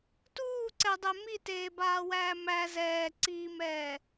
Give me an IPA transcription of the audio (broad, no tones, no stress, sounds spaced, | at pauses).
t uː ǀ ɛ dˤ ɛ m i t eː b aː w æː m æ z ɛː ǀ iː m ɛː